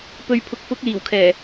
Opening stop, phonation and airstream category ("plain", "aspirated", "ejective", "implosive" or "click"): plain